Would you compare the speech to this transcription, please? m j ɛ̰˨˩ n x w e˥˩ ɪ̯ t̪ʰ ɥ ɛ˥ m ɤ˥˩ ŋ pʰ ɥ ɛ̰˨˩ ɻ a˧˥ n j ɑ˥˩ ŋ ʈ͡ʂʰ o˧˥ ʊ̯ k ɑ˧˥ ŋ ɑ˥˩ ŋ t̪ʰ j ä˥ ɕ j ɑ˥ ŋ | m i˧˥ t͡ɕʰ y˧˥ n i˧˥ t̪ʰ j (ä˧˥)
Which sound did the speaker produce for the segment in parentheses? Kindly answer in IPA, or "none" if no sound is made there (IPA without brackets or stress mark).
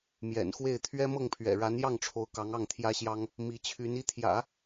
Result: ä̰˨˩˦